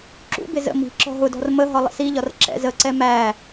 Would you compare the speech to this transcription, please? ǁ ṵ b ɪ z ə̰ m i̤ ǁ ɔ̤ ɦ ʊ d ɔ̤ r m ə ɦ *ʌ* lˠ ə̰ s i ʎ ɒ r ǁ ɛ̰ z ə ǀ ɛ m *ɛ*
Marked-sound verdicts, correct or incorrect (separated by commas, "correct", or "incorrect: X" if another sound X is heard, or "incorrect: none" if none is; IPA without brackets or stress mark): incorrect: ɒ, incorrect: æ